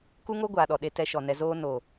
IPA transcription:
ku˦ŋo˦ ɡʷaː˨ɗɔ˨ɗe˧tɛ˧ ʃɔ˨nɛ˧ zoː˦ no˨

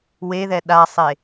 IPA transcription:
weðɛ ɗasˤe

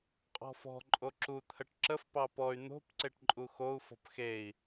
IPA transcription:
qʼɔ̤fɔ̤ ǃʼoǁu t̪ʰəʈǁəf pɑpɔy̯ n̪o̤p ǀeʈǃʼuxou̯ fɔ̤pxei̯

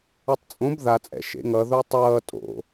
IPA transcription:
ʌtˤt͡sʼõb ðat͡sʼɛ̰ ʃḛŋʌ ðotˤʌː tʼo̰

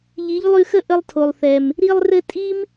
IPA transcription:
ʎi˨˦ʎlˠʉ˧xə˦ ʔə˦lˠtʰo˨lˠθɛ˨m | ɾi˧lˠrɘ˧ tʼi˦m

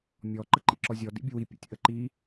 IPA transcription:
mʲɔ ǃəǃḭǁɔzʲɔ dḭbʲəwi pʲə̰tʲ ʔəǃi

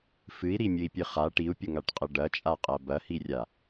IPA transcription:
fɨi̯ɾimʲɨi̯pʲɨ χa ʈiu̯pʲəŋaʈqʼɐ ɖɐt͡ʃʼaqʼɐ bɐhirʲa

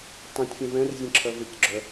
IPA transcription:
tˤĩtʲ fʲɛ̃vɛ̃rzʲẽ ǁʰœvecɡ͡ǁœ

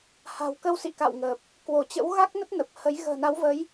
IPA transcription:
ha̤˨˩wkə˧wsḭ˧˨ka̰˧˨w ŋəː˨˩p̚ | kwo˧˩t͡ɕə̰˧˥w ɣa˦˥k̚ nə˦˥t̚nə˨˩p̚hə˨˦j ɣə̤ː˨˩na˨˦wvə˨˦j

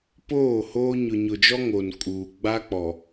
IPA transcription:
poː˦˨ hoː˦ ɲʊ˨ɲʊ˨d͡ʒɔ˦ ŋo˨nkʼuː˨ ɡ͡ba˦k͡pɔ˨

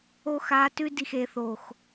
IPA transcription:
o˦ xaː˧tʉ˦di˨xe˨ θoː˨x

